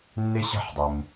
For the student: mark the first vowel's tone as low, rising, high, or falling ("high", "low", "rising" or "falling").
high